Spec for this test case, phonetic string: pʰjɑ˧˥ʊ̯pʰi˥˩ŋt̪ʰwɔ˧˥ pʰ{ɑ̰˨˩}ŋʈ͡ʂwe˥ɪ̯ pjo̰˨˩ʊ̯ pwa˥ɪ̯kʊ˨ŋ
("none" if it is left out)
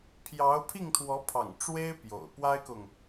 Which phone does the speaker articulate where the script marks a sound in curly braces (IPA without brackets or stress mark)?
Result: ɑ̰˨˩